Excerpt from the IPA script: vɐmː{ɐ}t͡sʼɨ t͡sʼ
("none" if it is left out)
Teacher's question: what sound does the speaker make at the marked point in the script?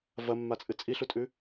a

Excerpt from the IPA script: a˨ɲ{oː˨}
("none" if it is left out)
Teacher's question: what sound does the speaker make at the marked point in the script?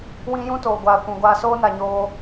oː˧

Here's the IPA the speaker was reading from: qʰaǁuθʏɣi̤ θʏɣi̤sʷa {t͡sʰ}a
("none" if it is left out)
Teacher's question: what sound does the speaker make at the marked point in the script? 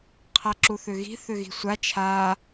t͡ʃʰ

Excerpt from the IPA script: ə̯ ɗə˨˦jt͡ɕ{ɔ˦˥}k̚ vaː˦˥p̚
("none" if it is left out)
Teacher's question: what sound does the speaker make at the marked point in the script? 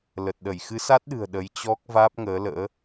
ɔ˦˥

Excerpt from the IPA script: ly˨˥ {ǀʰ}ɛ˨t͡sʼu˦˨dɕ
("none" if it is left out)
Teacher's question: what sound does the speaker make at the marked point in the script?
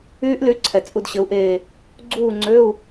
ǀʰ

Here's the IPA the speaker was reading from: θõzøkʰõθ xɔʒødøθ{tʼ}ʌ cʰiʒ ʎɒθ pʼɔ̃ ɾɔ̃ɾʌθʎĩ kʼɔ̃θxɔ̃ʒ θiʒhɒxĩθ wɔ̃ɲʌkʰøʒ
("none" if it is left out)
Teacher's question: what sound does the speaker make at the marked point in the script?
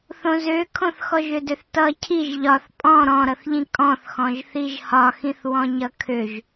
t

